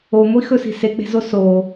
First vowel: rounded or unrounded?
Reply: rounded